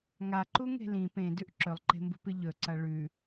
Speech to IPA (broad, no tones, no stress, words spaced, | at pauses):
ŋaǃuŋe̤ lĩ pẽdʉʔ ǁɵlˠǃe̤mbṳpɨ ʎɵǀɐ ɭʉ